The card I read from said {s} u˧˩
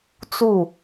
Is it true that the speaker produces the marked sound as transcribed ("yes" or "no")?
no